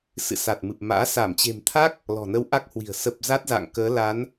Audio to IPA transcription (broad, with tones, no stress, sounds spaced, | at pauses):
s ɨ̰˧˨ s a˨˩ t̚ m ɨ˨˩ p̚ m a̰ː˧˥ s a˧˩ m t͡ɕ e̤˨˩ m t̪ʰ a˦˥ k̚ | l ɔ̤˨˩ n ə˧ w ʔ a˦˥ k̚ h w i̤˨˩ ə̯ s ə˨˩ p̚ z a˦˥ t̚ z a̰ː˧˨ ŋ k əː˨˦ l a˨˦ n